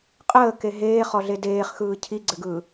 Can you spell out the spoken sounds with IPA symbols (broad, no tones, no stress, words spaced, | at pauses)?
qʼəːke ɦeːχɔɮe deːχxɯː cʰiɡ͡ǀɘɡɯː